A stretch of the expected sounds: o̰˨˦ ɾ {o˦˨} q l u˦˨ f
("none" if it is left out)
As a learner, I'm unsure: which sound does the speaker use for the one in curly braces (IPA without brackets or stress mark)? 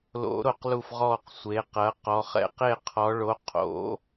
o˦˨